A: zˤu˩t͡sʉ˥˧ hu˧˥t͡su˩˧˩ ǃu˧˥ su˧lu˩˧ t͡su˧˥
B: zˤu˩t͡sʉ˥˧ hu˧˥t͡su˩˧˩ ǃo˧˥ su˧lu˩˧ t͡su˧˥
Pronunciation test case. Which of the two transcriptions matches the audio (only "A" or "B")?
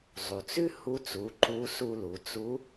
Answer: A